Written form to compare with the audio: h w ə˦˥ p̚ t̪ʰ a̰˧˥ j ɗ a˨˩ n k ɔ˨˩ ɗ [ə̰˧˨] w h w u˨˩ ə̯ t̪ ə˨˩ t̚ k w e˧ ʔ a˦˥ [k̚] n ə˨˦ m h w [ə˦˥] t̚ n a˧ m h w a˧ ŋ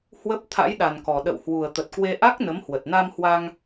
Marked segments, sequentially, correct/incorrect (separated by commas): correct, correct, incorrect